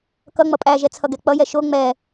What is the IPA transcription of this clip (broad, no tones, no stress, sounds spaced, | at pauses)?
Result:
k ʌ ŋ͡m ʌ pʼ æ ʒ ɛ t͡sʰ ʌ ɡ ɛ k͡p ʌ j ɛ ʃ o ŋ͡m ɛ